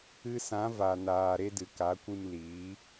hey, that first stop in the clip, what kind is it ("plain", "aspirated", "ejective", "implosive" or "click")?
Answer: plain